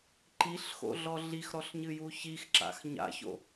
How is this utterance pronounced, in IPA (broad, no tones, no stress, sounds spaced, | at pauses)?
ǃ i ɬ x o̰ ɮ ɔ ɮ i x ɾ ɔ ɬ ɲ ɨ j u ç i x ǁ a̰ x ɲ a̰ ç o̰